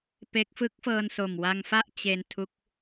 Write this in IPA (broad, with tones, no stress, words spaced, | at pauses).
pe˦˥k̚ fɯ˦˥k̚fɤː˧nso˨˩m wa˧ŋfa˥˩ʔ t͡ɕe˧n tʰu˦˥k̚